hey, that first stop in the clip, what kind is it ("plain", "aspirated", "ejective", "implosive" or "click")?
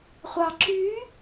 click